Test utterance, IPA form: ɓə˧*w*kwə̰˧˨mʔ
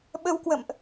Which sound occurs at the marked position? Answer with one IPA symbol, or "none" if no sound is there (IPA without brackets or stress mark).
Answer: w